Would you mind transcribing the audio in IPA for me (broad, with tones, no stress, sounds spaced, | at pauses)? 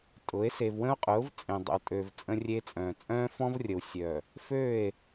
tʼ ʊ˨˦ e̯ s e˨ v w ə̃˦ o̯ qʼ ʊː˨˦ v t͡sʼ ẽ˨ dˤ ə̰˨ w tʼ ø˨ v t͡sʼ ə̃˦ rʲ e˦ t͡sʼ œ̃ː˨ t͡sʼ œ̃ː˦ f ɔ̃˦ v rʲ ə˨ w sʲ œ˨ | f ø˦˨ e̯